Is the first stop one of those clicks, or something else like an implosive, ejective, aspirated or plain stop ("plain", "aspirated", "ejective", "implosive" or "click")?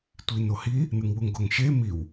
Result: plain